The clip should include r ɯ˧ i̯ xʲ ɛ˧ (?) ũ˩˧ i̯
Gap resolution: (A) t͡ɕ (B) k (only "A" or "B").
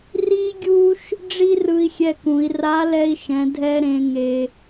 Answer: B